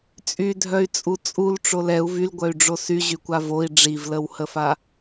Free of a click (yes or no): yes